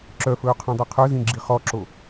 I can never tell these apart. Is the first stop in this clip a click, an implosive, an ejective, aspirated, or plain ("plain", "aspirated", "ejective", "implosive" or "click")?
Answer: click